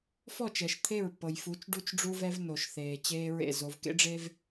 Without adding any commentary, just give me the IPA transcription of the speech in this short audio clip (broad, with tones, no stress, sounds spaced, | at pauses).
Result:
f ɔ˦˨ t͡ʃ ɛ˨ ʃ t̪ʰ e˦˨ ɹ pː ɤ˨ j f u˨˦ t͡ʃ ɖ u˦ t͡ʃ ɖ͡ʐ u˦ v ɛ˦ v n o˨ ʃ θ eː˨ t͡ɕ eː˦ ɹ ḛ˦˨ z o˨ v k ḛ˦ ɖ͡ʐ e˦ v